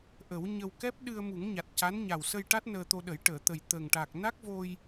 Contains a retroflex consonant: yes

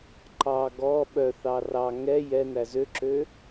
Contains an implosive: yes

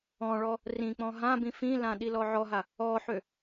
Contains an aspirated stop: no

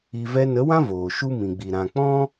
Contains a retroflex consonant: no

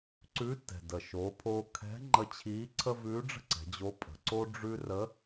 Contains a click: yes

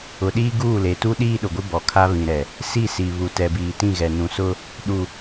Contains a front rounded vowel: no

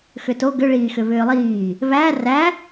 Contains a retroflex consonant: yes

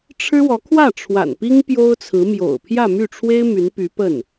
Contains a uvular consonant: no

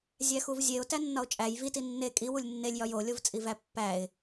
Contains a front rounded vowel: no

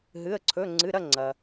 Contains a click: yes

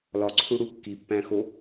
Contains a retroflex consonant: yes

